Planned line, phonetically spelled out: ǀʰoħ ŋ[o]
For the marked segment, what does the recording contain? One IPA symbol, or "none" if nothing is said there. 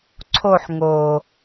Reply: o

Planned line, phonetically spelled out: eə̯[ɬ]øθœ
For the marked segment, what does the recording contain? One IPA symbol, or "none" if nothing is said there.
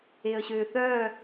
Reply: ɕ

